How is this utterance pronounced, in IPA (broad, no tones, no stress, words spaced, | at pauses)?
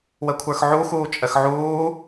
wəkʷʰə˞xʕu xuːt͡ʃʼəxʕuː